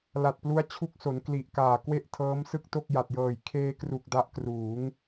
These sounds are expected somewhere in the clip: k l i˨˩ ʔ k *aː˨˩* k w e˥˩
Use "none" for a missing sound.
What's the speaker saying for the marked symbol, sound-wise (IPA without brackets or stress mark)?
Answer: aː˨˩